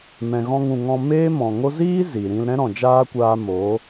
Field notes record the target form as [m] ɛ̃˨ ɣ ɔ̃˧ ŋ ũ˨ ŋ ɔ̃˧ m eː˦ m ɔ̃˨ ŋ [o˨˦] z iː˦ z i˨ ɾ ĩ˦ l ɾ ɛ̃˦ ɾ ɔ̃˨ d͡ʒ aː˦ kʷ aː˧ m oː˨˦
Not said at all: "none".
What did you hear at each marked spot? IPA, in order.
m, o˦

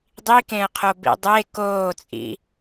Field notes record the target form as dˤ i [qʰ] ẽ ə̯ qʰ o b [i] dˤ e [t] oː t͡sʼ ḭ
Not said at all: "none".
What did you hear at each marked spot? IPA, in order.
k, ḭ, k

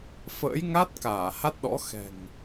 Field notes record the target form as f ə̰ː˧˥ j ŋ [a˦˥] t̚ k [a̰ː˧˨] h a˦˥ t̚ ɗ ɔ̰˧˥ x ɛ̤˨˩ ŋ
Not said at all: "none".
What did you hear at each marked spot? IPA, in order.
a˦˥, aː˧˩

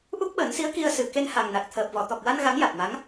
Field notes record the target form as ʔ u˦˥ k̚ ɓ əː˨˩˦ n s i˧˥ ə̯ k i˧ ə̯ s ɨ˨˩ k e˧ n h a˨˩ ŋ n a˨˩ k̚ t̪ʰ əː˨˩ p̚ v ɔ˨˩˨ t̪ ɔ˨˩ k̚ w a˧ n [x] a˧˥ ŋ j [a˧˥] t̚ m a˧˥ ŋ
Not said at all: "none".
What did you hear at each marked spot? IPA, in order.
ɣ, a˨˩

